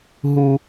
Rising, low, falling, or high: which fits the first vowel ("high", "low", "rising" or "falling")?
high